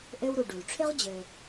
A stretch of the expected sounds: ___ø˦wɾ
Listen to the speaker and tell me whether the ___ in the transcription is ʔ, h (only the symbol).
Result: ʔ